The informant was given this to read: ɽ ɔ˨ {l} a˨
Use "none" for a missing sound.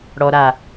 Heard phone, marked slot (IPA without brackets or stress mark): ɾ